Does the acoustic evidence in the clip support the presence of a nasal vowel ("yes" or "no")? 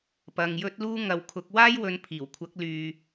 no